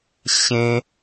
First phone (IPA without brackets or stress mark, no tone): ɕ